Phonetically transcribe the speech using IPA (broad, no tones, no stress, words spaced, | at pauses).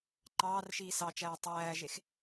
ǃɑːrʃiː sɑt͡ʃæː tˤæːʒex